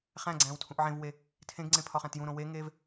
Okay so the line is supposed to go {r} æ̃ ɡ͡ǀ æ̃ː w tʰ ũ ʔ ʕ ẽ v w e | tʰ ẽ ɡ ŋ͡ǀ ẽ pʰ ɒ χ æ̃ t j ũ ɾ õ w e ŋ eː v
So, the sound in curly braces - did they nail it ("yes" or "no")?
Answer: no